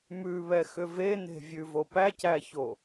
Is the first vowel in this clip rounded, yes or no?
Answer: yes